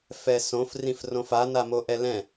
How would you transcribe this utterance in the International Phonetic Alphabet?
f ɛ s õ f r ĩ f r õ f a n a m o ʔ ɛ l ɛ̃

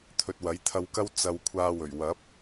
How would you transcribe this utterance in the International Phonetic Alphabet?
t̪ʰ ɵ˨ t̚ w ɐ˨˥ j t̪ʰ ɐ˧ w k ɐ˥ w t͡s ɐ˧ w kʷʰ aː˧ w ɵ˨˩ ɥ w ɐ˨˥ p̚

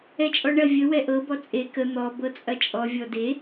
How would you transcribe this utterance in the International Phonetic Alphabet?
ɛ t͡ʃʼ ɔ ɳ ɐ vʲ ə w ɛ ʔ ɤ b ɔ t͡sʼ e k ə n̪ ɔ b ɤ t͡sʼ ɐ t͡ʃʼ ɔ vʲ ɔ d e

